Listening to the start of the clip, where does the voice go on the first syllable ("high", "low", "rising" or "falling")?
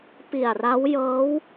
low